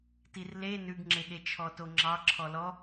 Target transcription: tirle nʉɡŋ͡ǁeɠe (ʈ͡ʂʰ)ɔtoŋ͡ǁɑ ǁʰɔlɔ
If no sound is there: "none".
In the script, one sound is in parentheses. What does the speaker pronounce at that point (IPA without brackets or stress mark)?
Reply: t͡ʃʰ